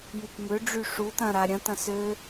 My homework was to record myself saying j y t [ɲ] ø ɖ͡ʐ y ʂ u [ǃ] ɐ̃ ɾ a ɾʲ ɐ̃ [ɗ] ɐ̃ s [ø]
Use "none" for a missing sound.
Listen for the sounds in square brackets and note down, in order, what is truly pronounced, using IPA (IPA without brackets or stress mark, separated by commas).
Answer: m, t, t, ø